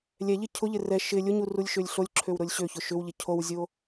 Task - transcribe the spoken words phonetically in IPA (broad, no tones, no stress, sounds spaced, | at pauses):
lʲ ɛ ʎ ɪ cʰ ʊ ʎ ɪ r ɛ ʃ ɪ lʲ ʊ ɲ u r u lʲ ʃ ø lʲ ɬ o lʲ ǁʰ ø w ɾ ʊ lʲ ɕ ø ç ʊ ʃ ʏ w ʎ ɪ cʰ o w zʲ o